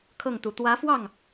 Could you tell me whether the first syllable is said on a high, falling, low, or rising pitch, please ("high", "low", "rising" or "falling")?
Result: falling